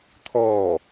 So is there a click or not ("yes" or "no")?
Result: no